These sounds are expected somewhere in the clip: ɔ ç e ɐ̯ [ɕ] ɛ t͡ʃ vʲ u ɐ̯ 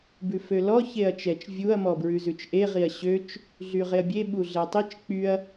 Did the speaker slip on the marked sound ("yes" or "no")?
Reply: yes